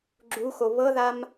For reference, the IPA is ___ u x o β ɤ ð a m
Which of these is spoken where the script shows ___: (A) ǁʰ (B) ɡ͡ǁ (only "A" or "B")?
B